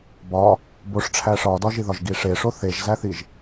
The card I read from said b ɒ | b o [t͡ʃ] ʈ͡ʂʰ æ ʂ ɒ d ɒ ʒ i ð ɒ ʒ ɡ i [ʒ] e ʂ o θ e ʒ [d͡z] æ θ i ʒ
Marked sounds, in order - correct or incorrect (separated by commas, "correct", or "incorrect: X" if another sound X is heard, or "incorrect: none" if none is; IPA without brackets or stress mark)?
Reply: incorrect: ʂ, incorrect: ʂ, incorrect: z